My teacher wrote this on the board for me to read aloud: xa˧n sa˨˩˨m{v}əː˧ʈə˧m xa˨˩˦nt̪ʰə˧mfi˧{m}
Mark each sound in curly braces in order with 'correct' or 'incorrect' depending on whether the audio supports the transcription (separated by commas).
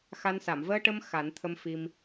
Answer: correct, correct